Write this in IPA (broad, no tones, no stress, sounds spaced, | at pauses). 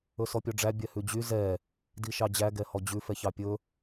ɵ s ɔ pʲ ɔ ɖ͡ʐ æ bʲ ɛ h ʉ d͡ʑ y z ɛ | d i ʃ ɑ d͡ʑ æ ɡ ɛ h ɔ d͡ʑ ʉ f ɛ ç ɑ pʲ ɵ